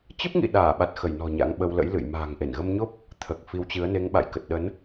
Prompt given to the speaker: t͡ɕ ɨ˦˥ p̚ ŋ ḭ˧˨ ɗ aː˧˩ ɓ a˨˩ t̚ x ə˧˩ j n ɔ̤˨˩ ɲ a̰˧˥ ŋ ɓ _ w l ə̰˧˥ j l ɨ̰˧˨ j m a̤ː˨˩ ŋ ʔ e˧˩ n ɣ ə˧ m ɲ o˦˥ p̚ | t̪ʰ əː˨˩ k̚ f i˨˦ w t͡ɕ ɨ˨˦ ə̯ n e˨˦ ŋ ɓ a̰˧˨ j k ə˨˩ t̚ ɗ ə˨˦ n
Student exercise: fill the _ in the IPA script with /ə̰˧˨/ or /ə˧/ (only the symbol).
ə˧